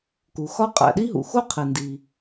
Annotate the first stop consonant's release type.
plain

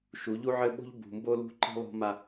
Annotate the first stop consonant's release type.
implosive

